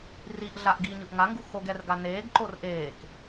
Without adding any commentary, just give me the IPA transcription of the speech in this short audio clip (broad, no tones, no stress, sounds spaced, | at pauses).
r i ʔ ɮ a ʔ ɡ iː ɲ ɯ ʔ ŋ a ŋ ɡ u x o ɡ ɛ r ɡ a n eː ɡ ǃ o r ʔ eː k